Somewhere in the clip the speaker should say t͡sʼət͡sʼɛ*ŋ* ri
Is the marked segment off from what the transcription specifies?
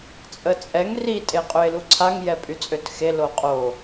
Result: no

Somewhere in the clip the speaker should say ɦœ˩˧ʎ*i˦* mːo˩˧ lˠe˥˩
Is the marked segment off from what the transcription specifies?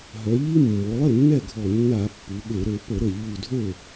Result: no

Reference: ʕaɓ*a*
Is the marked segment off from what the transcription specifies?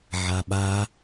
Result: no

